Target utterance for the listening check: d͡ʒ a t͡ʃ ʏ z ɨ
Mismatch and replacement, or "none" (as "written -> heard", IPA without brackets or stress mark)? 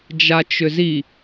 ɨ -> i